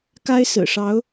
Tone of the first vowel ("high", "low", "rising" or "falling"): high